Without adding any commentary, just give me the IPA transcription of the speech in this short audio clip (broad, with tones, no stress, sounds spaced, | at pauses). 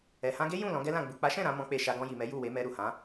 ɛ˨ h ã˧ ɡ e˦ j ũ˦˨ l ɔ̃˨˦ ɡ ɛ˦ l ã˦˨ ɡ͡b u˨ k͡p a˨˦ ʃ ɛ̃˦˨ ɾ ã˨˦ m ɔ̃˦ k͡p e˦˨ ʃ a˧ ɡ ɔ̃˧ j i˨ m ɛ˨˦ j u˦˨ w e˨˦ m ɛ˧ ɾ u˨ h ã˨˦